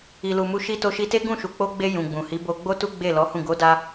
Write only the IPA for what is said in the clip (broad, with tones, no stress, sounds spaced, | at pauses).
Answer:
i˨ l u˨ m u˧ ʃ i˧ t o˧ ʃ i˧ t e˦ ɡ ũ˦˨ ʃ u˨ k͡p o˧ ɡ͡b e˧ j ũ˨ ɡ͡b ũ˨ h i˨˦ b o˧ ɡ͡b o˦ t u˦ ɡ͡b e˦˨ l ɔ˨˦ h ũ˦˨ ɡ o˨˦ d a˧